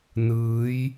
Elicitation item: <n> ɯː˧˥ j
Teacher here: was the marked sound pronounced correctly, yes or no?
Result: yes